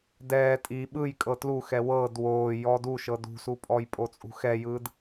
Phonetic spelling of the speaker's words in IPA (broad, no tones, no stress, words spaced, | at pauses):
dɛː tʼi ɓɯjkʼɤ tluxɛ wɤːd woː jɔdu ʃɤdṳsupʼɔj pʼot͡sʼṳxɛjɯːd